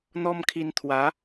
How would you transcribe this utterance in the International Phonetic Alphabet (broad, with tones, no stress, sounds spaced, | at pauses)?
n̪ ɔ˦ m kʰ i˧ n t̪ʰ w a˨˦